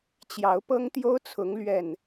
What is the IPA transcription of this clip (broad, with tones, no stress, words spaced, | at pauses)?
t͡ɕjɑ˨˦ʊ̯pɤ˦ŋt̪jo˦ʊ̯t͡sʰʊ˨˦ŋ lɥɛ˨˩n